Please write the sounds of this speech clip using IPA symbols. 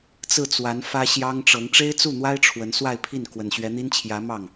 t͡sɹ̩˥˩t͡swa˧˥n fä˥ ɕjɑ˥ŋʈ͡ʂɤ˧˥ŋ ʈ͡ʂe˥ɪ̯t͡su˥˩n̪wa˥ɪ̯ ʈ͡ʂʰwə˧˥n swa˥˧ɪ̯pʰi˥˩n kwə˨˩nɕɥɛ˧˥n̪i˥nt͡ɕʰjä˧˥ mɑ˥˩ŋ

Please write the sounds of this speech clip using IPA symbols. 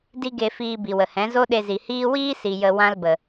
di˦ɡe˧ fiː˧bi˨wə˨hɛ̃˨˦ zo˦ɗe˧zi˨hiː˦ wiː˦si˨ jə˧ wã˦lbə˨

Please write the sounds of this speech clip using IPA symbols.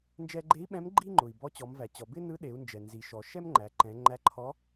nd͡ʒɛ˧ɡ͡ǃe˧˥i̯ɓɛ̃˧˥m ɡ͡ǃi˥ŋ͡ǃʊ˩i̯bɔ˧˥ t͡ɕɔ˩˧mvæ˩t͡ɕɔ˩ bɪ˥nɯ˧˥ɗe˩˧u̯nd͡ʒɛ˩ nzi˩ʃɔ˩ ʃɛ˥mŋ͡ǃæ˩˧ ǃɛ̃˩˧ŋ͡ǃæ˧˥ǃʰɔ˧˥

